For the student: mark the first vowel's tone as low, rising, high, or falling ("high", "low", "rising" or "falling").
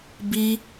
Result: high